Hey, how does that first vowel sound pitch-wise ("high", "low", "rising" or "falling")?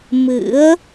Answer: rising